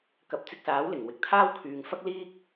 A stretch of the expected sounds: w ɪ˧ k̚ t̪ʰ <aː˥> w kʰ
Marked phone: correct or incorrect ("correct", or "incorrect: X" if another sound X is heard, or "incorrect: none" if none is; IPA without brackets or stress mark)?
correct